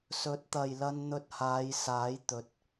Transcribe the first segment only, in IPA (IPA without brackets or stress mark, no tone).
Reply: s